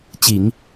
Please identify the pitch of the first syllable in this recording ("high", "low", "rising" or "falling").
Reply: low